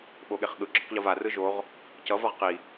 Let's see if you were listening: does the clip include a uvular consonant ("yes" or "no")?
yes